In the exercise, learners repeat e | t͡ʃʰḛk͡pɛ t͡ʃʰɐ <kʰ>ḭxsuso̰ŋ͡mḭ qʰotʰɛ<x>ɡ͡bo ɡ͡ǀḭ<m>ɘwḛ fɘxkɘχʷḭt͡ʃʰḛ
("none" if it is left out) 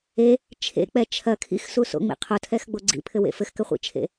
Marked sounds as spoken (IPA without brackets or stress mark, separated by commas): kʰ, x, pʰ